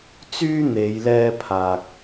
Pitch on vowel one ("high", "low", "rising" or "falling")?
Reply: high